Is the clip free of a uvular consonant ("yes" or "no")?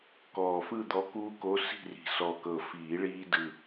yes